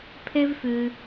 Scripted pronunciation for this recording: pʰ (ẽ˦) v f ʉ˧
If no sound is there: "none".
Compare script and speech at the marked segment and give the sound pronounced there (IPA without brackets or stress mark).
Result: e˦